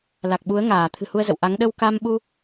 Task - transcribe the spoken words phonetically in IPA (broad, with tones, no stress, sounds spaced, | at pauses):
l a˨˩ k̚ ɓ u˨˦ ə̯ ŋ aː˧˩ t̪ʰ ɨ̤˨˩ h u˧ ə̯ z ə̰˧˨ w ʔ a˨˦ ŋ ɗ ə˧ w k a˧ m ɓ u˧